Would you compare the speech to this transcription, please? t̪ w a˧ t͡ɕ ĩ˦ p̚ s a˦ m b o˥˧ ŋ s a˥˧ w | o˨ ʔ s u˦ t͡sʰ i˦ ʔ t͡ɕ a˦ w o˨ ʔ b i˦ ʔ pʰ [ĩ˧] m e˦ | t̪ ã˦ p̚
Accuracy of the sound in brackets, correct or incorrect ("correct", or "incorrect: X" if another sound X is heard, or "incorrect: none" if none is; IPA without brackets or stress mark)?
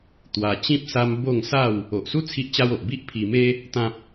incorrect: i˧